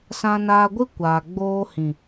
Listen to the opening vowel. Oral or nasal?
nasal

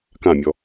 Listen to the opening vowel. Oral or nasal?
nasal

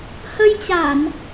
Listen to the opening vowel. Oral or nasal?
oral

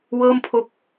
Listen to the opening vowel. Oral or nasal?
oral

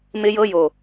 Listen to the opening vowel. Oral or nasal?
oral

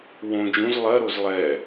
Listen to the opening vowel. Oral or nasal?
nasal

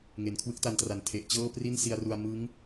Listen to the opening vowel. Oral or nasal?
oral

